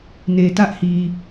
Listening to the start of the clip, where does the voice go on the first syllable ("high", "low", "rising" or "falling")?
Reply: low